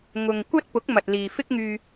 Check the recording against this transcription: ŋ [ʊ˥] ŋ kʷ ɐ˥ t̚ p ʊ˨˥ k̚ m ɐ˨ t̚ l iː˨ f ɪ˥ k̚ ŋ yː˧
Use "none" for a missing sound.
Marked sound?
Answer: ʊ˨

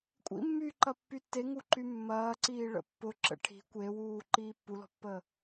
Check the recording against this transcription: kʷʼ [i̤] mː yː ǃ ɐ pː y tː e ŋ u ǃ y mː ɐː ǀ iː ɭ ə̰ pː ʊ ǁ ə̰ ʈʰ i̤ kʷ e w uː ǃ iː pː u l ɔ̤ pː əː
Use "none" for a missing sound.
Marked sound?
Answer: ḭ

